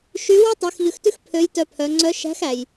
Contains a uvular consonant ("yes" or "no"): no